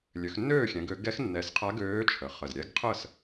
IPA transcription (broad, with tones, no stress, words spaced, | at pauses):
lʲø˩˧xnːøː˥˨xʲɛ̃˩˧ɡ ø˩˧ ɡɛ˧˥xnːɛ˨˩sqʰa˧˥ ɡøː˧˥t͡ʃʰə˩˧χə˨˩z ɾʲɛ˧˥ɡqʰə˥˨s